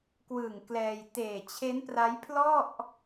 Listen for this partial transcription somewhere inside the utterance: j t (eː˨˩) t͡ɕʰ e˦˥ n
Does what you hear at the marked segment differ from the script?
no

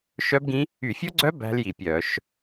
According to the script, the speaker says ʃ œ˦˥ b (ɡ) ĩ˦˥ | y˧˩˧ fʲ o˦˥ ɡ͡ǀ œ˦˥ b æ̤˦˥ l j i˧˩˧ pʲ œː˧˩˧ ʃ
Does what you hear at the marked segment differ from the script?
no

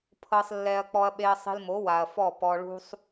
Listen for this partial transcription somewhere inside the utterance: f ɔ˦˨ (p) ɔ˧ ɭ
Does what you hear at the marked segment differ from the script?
no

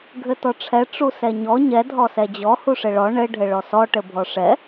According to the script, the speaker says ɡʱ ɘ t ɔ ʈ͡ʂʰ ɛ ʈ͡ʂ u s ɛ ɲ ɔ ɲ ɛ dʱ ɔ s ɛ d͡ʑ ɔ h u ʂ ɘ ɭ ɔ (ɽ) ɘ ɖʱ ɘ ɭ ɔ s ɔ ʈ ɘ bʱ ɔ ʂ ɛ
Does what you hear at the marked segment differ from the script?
yes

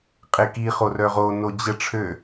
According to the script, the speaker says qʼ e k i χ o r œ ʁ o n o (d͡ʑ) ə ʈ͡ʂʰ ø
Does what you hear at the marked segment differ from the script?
no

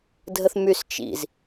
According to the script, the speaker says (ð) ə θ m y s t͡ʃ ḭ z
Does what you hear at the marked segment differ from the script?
yes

